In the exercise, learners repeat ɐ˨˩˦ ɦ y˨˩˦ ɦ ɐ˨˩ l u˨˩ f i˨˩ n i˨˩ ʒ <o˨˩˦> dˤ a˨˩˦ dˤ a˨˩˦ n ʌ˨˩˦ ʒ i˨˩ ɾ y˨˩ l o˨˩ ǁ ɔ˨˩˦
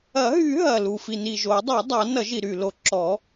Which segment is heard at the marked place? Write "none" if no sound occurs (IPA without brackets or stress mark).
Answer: o˨˩˦